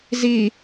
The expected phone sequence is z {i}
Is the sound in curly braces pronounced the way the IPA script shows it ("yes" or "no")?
yes